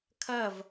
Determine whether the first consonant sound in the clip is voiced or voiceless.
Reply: voiceless